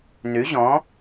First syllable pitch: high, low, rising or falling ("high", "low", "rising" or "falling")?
rising